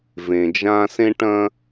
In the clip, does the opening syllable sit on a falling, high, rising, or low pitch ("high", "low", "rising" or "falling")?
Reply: low